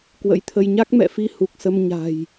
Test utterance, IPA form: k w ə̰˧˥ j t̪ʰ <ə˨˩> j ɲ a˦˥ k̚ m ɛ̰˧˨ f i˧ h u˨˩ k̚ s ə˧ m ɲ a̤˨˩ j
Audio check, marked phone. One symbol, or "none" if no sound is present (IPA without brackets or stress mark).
ə˧